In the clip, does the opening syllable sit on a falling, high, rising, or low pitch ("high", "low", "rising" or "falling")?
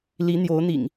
rising